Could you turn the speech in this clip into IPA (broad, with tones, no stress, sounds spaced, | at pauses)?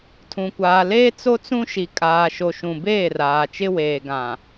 tʰ ũ˨ kʷ aː˨ l eː˦ t͡s o˦ t͡s ũ˦ ʃ i˨ kʼ aː˨ ʃ o˨ ʃ ũ˨ b eː˦˨ r aː˨ t͡ʃ ɪ˦ w eː˨ ɡ ã˨